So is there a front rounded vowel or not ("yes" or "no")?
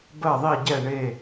no